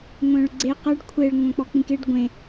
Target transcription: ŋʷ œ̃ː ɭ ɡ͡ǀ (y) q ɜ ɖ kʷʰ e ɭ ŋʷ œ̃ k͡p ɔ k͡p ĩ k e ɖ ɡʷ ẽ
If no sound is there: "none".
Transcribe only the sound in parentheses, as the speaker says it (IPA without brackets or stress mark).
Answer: e